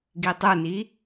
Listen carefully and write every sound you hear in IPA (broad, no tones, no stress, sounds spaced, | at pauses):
ɡ i tˤ ə˞ n i